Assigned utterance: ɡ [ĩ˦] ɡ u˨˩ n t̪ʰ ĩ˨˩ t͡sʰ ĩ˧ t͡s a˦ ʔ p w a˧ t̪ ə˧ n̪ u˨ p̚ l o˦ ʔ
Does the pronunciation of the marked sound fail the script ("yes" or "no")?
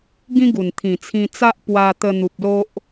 no